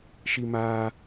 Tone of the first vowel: high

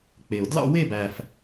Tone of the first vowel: low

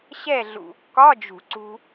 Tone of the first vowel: falling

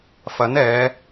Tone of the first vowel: rising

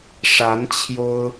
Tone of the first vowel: rising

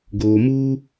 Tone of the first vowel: low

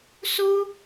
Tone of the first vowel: high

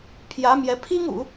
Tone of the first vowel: rising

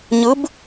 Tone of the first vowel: rising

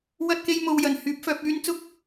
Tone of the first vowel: high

